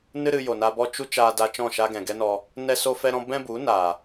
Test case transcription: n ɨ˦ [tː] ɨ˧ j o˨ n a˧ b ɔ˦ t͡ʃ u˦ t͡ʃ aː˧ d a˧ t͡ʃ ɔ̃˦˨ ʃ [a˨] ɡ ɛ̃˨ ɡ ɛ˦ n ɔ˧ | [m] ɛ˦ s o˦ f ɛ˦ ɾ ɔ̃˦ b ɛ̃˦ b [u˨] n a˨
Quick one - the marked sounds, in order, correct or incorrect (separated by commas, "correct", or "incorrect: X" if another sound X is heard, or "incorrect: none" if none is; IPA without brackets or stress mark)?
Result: incorrect: ɾ, incorrect: a˦, incorrect: n, incorrect: u˨˦